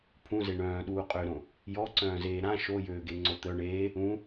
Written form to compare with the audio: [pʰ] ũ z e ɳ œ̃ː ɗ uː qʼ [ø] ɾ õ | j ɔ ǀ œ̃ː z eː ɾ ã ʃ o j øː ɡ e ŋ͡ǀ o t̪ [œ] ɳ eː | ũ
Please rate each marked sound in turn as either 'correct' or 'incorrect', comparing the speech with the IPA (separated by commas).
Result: correct, correct, correct